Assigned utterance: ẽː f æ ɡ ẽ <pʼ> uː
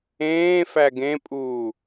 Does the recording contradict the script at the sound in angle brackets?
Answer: no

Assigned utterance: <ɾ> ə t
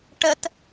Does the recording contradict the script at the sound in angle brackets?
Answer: yes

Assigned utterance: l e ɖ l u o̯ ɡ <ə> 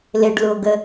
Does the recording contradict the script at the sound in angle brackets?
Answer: no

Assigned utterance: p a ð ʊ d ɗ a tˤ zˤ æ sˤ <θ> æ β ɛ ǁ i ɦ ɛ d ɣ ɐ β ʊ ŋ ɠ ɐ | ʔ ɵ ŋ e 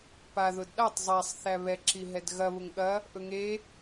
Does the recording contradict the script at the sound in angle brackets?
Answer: no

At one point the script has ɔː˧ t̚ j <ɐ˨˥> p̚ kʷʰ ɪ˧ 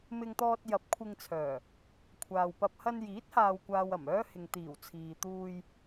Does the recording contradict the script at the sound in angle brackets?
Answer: no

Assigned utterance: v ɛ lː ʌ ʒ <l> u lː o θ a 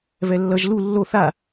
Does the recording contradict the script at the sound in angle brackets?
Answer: no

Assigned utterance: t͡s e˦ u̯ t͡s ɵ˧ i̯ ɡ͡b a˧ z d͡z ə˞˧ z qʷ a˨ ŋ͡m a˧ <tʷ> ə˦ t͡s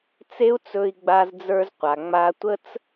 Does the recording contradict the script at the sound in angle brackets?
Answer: no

